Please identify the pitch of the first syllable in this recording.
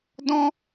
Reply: high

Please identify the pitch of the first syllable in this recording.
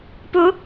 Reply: rising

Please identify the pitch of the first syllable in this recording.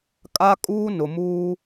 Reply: high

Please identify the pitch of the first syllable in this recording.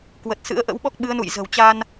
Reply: low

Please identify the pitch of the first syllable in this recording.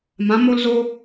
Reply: rising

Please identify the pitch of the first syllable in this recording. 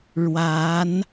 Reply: rising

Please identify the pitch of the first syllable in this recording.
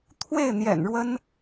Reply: falling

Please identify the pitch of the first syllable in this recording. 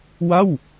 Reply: falling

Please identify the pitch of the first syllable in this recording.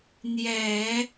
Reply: low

